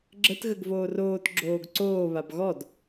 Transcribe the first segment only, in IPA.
ɡ͡ǁ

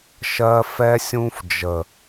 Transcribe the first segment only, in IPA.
ʃ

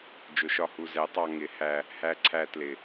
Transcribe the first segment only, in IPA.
d͡ʒ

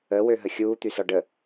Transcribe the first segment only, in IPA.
ə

